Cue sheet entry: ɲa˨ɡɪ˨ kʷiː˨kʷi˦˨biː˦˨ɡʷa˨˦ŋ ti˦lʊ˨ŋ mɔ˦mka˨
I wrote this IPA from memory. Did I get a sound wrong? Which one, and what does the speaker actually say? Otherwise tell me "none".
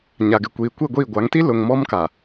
b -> ɡʷ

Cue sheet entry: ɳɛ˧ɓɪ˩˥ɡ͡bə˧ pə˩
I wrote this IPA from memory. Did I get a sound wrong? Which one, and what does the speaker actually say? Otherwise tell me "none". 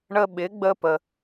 ɛ˧ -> ə˧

